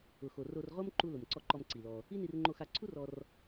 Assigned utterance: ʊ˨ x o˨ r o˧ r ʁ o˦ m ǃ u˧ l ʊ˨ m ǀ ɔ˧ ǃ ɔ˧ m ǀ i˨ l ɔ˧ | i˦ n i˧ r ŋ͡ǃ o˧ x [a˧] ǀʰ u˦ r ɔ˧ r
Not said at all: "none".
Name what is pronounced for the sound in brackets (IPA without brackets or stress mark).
a˧